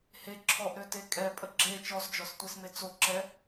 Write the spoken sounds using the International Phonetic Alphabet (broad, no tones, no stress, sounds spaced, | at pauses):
h e ǁʰ ɔ ʔ ɾ ø t e kʼ ɛ pʼ ə ɡ͡ǁ e t͡ʃ ɔ s d͡ʒ ɔ s tʷ e s m e t͡s o ǁ ɛ